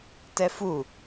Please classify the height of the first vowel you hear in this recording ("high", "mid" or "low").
mid